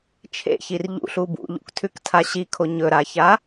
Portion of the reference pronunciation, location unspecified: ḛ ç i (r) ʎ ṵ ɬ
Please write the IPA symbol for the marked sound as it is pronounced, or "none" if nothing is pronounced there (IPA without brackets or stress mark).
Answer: r